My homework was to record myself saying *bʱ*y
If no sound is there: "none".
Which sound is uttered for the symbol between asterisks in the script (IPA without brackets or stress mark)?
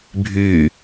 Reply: bʱ